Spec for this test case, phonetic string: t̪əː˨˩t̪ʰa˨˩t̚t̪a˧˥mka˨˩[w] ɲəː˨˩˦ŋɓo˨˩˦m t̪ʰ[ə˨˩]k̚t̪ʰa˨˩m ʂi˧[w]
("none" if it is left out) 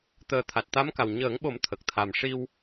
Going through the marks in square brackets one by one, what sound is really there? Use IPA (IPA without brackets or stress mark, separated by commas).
w, ə˨˩, w